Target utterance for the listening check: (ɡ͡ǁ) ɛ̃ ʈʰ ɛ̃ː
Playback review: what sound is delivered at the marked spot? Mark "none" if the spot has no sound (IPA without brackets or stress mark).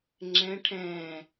ŋ͡ǁ